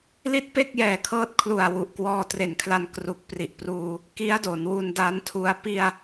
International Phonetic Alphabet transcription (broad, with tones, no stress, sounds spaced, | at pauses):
l i˥˩ t̚ p e˥˩ k̚ j ɛː˨˩ kʰ ɤː˦˥ t̚ kʰ l u˨˩ a̯ w u˨˩ ʔ k w ɔː˧ t r e˨˩ n kʰ l a˧ n k r u˨˩ k̚ p r i˨˩ ʔ p r uː˧ | k i˦˥ a̯ d o˩˦ n w u˧ n d a˦˥ n tʰ u˧ a̯ p i˧ a̯